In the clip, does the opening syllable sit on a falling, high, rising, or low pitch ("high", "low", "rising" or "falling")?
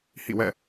falling